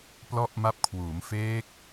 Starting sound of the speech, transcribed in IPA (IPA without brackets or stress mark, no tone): p